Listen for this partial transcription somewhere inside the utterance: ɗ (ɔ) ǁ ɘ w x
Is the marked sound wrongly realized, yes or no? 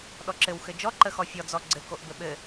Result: no